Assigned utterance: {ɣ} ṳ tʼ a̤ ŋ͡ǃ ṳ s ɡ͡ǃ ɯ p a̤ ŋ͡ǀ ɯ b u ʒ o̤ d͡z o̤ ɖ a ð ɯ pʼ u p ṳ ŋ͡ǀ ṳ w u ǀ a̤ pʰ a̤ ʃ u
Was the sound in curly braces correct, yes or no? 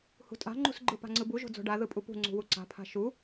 no